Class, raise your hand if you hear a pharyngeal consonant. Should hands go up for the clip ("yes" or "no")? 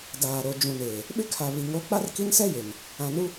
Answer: no